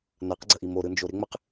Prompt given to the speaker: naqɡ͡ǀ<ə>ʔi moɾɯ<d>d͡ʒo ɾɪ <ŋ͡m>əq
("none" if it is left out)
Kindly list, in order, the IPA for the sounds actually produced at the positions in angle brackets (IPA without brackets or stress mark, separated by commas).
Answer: ə, n, ŋ͡m